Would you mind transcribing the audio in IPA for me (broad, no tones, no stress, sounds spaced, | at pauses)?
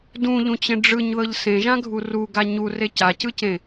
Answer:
d ũ ʎ ũ t͡ɕ ẽ ɖ͡ʐ ɯ ɲ ð ɤ ʎ s ẽ ʒ ã ɡʱ u r u ɡ a ɲ u r e c a c ɯ c ẽ